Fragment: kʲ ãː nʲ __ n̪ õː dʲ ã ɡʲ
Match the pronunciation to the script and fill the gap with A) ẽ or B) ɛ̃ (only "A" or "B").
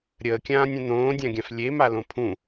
B